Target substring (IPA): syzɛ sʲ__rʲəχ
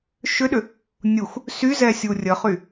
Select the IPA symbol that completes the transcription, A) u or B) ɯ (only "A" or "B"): A